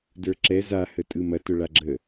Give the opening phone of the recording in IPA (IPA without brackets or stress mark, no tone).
d